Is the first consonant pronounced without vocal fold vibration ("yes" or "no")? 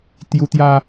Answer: yes